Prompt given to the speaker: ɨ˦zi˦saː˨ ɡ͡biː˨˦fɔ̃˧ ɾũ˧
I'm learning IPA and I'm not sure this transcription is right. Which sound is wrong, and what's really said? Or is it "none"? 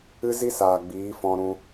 none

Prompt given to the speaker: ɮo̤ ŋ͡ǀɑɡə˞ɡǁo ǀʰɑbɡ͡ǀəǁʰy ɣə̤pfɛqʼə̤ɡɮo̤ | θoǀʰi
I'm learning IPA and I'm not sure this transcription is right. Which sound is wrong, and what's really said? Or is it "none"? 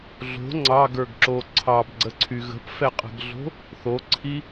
ǁʰ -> ǀʰ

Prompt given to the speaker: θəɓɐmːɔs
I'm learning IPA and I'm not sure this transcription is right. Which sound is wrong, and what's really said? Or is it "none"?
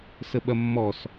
θ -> s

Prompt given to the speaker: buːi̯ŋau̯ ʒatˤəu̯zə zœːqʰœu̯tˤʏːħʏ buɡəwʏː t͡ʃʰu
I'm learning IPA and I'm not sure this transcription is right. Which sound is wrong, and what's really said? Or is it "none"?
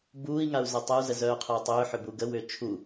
ʒ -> z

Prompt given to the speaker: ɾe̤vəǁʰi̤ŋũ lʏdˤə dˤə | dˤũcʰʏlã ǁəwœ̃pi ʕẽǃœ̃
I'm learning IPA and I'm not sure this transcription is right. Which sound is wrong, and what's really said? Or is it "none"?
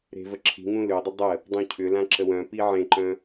none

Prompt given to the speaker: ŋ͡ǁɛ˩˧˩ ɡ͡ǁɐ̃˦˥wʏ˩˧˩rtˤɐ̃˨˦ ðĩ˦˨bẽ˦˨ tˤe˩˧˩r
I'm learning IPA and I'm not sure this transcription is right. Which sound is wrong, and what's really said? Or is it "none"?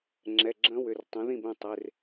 none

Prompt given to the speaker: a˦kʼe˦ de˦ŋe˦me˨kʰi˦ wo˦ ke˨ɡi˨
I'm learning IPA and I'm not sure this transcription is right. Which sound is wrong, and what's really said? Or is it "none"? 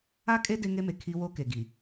none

